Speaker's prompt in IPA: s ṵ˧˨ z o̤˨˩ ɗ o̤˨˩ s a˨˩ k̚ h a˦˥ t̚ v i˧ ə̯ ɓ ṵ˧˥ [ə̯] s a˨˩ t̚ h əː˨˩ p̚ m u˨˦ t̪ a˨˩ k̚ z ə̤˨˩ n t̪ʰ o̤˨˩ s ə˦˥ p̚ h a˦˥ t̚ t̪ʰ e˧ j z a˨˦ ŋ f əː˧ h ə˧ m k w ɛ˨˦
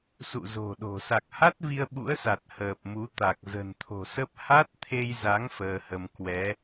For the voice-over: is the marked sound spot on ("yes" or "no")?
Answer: yes